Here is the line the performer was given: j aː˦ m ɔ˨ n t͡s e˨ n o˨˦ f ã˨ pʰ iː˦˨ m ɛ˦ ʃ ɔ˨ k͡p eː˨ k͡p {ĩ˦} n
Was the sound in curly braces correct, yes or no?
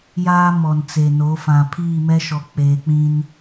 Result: yes